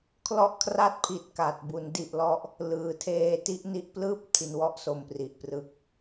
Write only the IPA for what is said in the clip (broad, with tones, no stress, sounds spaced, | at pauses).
kʰ l ɔ˥˩ ʔ kʰ r a˥˩ t̚ pʰ i˨˩ t̚ k a˨˩ t̚ b u˩˦ n d i˨˩ ʔ l ɔ˦˥ ʔ | l ɯː˩˦ tʰ eː˦˥ t i˦˥ ʔ n i˦˥ ʔ p l ɯː˥˩ p̚ tʰ i˨˩ n w ɔ˦˥ ʔ s o˨˩ m p r i˨˩ ʔ p r ɯ˨˩ k̚